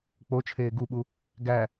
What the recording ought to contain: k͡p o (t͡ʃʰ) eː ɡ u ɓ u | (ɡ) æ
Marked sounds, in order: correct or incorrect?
correct, correct

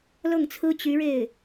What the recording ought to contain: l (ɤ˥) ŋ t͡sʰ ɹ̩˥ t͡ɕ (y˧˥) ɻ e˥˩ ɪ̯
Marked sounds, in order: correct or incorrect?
incorrect: ɤ˥˩, correct

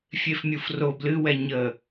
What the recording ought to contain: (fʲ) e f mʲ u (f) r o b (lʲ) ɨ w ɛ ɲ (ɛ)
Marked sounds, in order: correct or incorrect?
correct, correct, incorrect: l, incorrect: ə

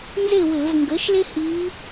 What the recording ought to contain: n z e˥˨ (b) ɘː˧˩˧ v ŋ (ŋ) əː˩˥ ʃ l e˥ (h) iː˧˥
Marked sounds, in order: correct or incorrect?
incorrect: w, incorrect: ɡ, correct

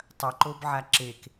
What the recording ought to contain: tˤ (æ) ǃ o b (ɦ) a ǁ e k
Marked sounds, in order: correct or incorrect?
incorrect: ɐ, incorrect: ʕ

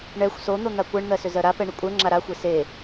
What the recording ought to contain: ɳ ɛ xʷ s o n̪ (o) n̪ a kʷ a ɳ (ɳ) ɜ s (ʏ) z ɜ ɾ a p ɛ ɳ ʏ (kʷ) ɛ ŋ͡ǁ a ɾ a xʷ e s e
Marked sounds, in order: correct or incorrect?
correct, incorrect: n̪, correct, incorrect: kʷʼ

